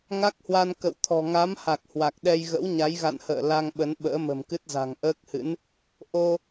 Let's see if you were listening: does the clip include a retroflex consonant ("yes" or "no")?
no